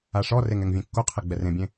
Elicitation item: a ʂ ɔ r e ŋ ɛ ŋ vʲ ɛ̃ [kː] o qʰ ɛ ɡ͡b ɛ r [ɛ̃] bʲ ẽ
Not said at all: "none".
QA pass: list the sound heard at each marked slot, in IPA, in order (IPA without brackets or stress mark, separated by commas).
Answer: kː, ẽ